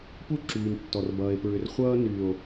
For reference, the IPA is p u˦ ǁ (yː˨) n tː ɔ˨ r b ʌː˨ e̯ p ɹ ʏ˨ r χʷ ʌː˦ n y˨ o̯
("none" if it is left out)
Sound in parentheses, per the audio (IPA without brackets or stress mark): yː˨